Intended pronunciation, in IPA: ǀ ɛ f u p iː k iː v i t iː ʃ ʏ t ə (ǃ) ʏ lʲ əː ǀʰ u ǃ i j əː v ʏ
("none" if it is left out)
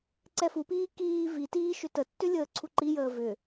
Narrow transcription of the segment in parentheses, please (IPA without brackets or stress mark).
tː